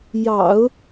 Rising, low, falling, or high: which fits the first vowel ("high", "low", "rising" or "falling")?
low